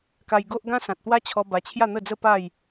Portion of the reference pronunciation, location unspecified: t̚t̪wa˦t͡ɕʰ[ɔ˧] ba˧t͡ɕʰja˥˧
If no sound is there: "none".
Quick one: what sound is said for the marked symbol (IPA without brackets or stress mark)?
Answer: ɔ˧